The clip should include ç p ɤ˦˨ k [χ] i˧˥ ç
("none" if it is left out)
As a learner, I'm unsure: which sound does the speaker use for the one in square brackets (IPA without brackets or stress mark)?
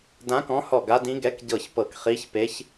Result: χ